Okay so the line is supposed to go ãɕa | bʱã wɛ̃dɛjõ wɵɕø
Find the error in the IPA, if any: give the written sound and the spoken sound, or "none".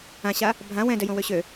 ɵ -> ø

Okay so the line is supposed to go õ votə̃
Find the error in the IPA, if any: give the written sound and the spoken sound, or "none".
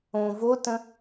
none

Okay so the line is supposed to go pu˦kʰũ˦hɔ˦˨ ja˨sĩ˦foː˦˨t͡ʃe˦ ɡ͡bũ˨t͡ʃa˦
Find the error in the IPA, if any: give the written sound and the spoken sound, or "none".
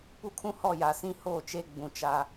f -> h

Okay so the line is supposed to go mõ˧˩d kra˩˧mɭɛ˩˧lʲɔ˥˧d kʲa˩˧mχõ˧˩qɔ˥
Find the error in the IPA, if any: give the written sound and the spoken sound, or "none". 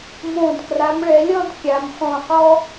none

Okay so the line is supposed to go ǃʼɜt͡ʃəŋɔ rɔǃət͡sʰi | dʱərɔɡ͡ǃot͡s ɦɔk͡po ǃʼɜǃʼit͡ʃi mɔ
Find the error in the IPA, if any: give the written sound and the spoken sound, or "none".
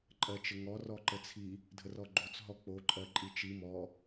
none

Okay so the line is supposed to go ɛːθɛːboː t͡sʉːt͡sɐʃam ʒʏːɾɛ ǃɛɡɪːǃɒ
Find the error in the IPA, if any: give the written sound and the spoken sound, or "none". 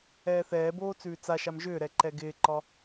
ɐ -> a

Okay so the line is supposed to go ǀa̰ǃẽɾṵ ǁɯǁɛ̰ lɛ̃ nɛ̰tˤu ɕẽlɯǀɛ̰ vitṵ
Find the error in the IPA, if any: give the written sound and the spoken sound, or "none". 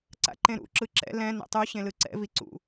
t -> ǀ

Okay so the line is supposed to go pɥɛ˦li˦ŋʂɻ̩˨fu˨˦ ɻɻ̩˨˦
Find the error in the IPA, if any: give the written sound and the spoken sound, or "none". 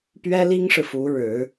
none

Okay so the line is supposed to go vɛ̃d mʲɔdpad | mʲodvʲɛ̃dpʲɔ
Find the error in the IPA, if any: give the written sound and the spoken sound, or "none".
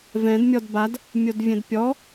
p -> b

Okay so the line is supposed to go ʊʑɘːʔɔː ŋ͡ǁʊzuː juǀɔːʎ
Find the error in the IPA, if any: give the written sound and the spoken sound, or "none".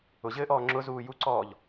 none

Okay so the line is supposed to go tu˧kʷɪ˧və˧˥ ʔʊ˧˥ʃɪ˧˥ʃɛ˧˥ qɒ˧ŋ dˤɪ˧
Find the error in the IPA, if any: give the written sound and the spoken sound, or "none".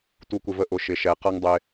ɒ˧ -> ʌ˧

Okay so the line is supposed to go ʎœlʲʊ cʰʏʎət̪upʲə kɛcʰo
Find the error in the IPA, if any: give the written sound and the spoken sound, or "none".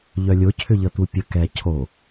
none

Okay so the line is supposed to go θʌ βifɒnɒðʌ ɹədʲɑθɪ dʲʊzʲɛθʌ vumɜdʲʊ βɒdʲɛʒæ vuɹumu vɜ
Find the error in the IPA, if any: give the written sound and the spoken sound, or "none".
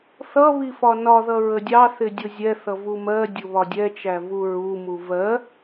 ʒ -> t͡ʃ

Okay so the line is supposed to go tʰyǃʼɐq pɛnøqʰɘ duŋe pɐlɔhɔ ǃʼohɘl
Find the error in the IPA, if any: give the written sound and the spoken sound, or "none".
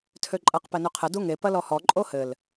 y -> ø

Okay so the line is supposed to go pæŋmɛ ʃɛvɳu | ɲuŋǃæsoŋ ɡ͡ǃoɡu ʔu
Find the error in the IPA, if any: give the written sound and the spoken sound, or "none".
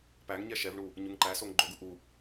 m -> ɲ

